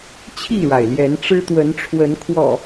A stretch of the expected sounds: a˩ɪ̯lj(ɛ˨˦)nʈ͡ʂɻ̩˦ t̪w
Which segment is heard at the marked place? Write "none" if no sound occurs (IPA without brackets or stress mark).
ɛ˨˦